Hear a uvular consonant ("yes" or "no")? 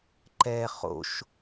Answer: yes